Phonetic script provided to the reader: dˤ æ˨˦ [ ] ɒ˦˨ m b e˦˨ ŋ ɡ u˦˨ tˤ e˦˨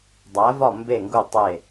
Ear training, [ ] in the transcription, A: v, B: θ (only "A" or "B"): A